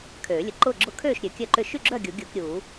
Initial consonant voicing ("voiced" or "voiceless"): voiceless